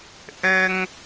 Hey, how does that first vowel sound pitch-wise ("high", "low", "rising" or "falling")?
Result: high